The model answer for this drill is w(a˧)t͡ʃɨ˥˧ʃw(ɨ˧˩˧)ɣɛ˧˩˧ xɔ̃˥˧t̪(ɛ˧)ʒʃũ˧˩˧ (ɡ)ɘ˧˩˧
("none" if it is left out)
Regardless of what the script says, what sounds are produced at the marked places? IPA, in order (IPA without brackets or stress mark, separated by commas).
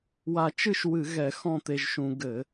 a˧, ɨ˧˩˧, e˧, ɡ